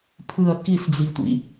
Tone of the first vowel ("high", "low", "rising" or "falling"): falling